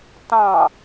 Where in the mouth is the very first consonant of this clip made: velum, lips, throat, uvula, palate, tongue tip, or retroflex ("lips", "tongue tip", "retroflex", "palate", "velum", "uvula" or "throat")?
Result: tongue tip